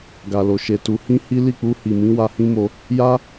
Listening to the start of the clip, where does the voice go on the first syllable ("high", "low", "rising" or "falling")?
low